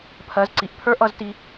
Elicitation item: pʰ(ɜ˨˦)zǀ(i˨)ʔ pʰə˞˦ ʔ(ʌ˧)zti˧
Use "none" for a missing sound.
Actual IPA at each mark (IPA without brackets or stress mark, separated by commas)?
ɜ˨˦, i˨, ʌ˧